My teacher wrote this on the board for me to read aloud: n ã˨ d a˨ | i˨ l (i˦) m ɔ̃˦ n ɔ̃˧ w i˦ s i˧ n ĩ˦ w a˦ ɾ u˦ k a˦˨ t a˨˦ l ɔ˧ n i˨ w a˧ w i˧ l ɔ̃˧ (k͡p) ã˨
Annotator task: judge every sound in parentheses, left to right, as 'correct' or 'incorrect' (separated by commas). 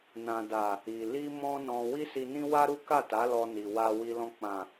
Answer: incorrect, correct